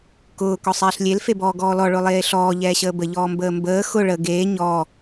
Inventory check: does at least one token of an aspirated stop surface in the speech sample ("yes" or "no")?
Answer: no